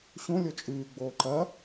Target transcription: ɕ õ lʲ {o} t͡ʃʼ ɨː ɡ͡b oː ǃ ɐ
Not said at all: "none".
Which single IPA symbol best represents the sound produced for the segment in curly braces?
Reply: o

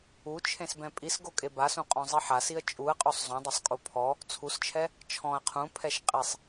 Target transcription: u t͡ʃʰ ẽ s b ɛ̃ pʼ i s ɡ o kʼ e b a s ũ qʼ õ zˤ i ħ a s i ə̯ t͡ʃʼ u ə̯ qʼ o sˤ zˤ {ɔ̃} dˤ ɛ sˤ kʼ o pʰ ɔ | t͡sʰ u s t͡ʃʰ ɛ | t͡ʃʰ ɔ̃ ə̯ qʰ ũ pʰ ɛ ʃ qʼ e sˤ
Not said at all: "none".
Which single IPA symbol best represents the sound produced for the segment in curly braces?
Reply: õ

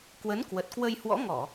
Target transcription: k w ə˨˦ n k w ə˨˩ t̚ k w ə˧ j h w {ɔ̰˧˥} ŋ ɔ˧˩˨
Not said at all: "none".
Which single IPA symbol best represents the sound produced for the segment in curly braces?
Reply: ɔ̰˧˥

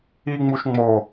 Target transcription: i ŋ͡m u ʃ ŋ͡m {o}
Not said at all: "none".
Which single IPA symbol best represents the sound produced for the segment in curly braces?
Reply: o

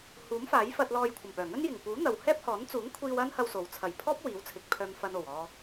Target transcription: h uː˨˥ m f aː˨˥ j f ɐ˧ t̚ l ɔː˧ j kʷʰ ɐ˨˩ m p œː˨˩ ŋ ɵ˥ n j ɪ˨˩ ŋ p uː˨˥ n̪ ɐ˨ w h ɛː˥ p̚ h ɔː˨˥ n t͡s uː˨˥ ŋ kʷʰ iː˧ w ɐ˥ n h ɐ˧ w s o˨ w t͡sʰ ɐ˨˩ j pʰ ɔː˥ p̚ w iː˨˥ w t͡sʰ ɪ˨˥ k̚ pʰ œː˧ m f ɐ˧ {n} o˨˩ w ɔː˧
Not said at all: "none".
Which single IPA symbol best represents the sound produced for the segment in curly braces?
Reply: n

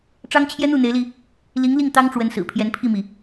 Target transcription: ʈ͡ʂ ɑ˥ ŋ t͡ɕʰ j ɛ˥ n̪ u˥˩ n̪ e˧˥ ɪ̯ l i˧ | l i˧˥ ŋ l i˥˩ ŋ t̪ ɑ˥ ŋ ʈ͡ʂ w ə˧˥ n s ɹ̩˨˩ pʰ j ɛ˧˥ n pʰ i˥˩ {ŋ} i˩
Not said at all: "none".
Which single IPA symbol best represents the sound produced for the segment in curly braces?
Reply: m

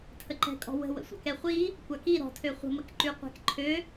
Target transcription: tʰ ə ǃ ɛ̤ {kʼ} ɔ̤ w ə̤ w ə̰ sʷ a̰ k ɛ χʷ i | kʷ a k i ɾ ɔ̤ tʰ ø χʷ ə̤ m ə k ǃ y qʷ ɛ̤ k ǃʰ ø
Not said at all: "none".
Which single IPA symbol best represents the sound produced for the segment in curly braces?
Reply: kʼ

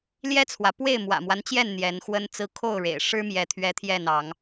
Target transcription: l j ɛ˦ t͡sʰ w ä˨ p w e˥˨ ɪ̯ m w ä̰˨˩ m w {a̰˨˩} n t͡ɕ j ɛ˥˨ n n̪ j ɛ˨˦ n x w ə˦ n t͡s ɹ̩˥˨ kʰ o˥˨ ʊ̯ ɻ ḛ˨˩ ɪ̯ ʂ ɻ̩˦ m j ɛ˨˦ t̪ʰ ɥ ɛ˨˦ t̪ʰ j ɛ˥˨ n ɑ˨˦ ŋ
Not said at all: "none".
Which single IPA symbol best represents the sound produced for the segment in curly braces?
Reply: a˦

